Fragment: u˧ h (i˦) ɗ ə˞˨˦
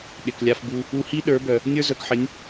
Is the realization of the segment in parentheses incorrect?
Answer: no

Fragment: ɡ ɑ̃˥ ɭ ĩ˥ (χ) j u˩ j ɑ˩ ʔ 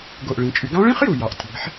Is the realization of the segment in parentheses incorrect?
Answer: no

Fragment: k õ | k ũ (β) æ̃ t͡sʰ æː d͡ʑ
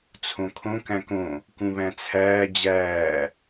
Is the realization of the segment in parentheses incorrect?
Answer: no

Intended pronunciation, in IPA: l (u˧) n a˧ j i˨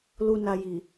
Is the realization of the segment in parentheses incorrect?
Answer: no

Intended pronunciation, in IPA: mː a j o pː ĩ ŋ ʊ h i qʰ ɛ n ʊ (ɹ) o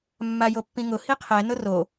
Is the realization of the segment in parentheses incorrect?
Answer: yes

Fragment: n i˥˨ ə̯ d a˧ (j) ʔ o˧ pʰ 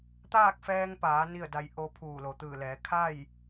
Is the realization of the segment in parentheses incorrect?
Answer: no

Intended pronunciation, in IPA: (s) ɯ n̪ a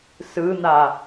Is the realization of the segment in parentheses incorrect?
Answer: no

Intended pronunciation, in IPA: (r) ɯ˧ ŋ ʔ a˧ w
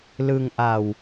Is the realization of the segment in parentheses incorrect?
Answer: yes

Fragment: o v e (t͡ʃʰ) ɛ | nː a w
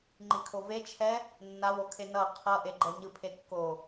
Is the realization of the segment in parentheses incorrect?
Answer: no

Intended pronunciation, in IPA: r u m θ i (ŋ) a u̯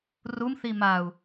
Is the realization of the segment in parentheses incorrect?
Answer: yes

